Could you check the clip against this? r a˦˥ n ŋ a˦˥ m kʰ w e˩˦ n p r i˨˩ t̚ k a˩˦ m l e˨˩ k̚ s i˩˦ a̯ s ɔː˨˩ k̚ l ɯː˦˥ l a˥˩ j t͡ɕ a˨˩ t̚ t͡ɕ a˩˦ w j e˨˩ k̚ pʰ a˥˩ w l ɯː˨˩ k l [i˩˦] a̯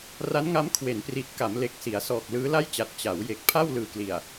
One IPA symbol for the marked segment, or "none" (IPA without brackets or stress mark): i˨˩